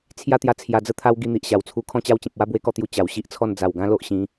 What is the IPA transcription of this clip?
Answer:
t͡sʰja˦t̪ja˧ t͡sʰja˧d͡zə˦t̪ʰa˦w ɡi˧n̪i˨ʔɕa˨˩wt͡sʰu˧ kʰɔ̃˧t͡ɕa˧wt͡ɕẽ˨p̚ wa˦bwe˧kɔ˥˧t̪ju˧ t͡ɕa˨˩wɕi˦ʔt͡sʰɔ˥˧n d͡za˨˩wɡã˦ lo˦ʔɕĩ˨˦

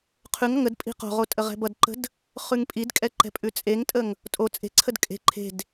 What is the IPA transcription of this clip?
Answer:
qʰʉŋʌŋ əd pʼi̤qo̤ʁo tʼəʁɛ̤bʌdǃə̤d | χʉŋpʼidkʼɛ ǃɛ̤pʼʉt͡sʼeŋtʼəŋ | tʼo t͡sʼe̤ǀʰəd kʼe̤ ǃʰe̤d

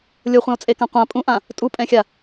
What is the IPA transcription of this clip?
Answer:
lʲoχʷɛ̃o̯t͡sʼekã qʷã pʼũʔã | tʼupʼɛ̃xʲa

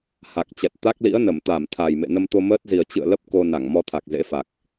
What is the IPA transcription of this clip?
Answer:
ha˨˩k̚t͡ɕɛ˨˩t̚ t̪a˦˥k̚lḭ˧˥ə̯nə˧˩mt̪a˧˩m t̪ʰa˨˩jmḛ˧˨ nə˧mt̪o˧məː˦˥t̚zi˨˩ə̯ t͡ɕɨ̰˧˨ə̯lə˦˥p̚ ko˧ na˧˩ŋmɔ˧t̪ʰa˨˩k̚ zḛ˧˥fa˨˩k̚

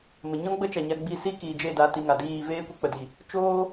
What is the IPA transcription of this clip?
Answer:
mə˨ɲɔ̃˦ ɡ͡bə˦t͡ʃa˨ɲa˧ ɡ͡bi˧si˦ kiː˨d͡ʒe˦˨da˧ ti˧ŋa˨ diː˦˨ veː˦kʷi˧k͡pə˨ di˨ | t͡ʃoː˦

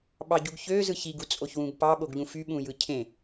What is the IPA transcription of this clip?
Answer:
ɓɑɟuɡçø zɯçiɡ ut͡sʼoçwũɡpɑ ɓoɡʎũfy ɓũjɯcʰẽ

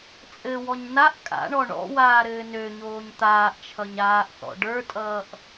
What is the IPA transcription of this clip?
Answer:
t͡sʼɘwɔɲ naʔ kʼa̰ɳɔ ɳɔ̰waː ɾɘːnøɲoːɲ t̪aːʔt͡ʃʰʌɲ aːʔθɔ̰ ɖə˞tʼʌːʔ

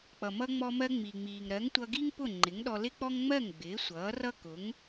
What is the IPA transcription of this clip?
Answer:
k͡pʌ˩mʌ˧ ŋ͡mɔ˧mɜ˧ ŋ͡mi˩ŋ͡miː˩ŋ ɾɜ˩˥ŋtʷʌ˧ɡi˥ŋpʊ˥˩ ŋ͡ǃɪ˩˥ŋɗɔ˧lɪ˥k͡pɔ˥ŋ ŋ͡mɜ˥˩ŋ ɡ͡bɪː˩˥sʷʌː˩˥rʌ˥ kʊ˩˥ŋ

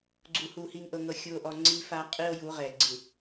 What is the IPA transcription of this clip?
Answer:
ɡ͡ǀu˨hu˨ hi˨ŋʔɤ˨ŋɤ˨ xʲu˨o̯ʔɔ˨ ŋ͡ǀi˦fa˦ qʼi˦o̯ju˨˦ʁɛ˨ ɡ͡ǀɯ˨

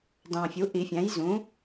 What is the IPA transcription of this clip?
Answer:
dɑ̃˨˩fʲu˩˥ ʔi˨˩˦fʲæ̃˩˥j zũ˩˥

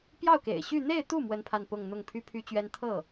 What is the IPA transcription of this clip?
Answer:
pjɑ˥˩ʊ̯kḛ˨˩ɪ̯ɕy˥˧ n̪e˥˧ɪ̯t̪u˥˩ mwə˥npʰa˥˧n pʊ˥˧ŋn̪ʊ˥˩ŋ pʰy˥pʰy˥t͡ɕɥɛ˥n t̪ʰɤ˥˩

